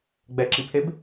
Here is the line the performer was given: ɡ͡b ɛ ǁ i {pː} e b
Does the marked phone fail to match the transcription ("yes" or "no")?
yes